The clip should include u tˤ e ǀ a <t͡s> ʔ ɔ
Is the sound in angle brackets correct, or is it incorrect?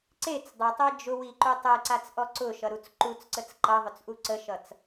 correct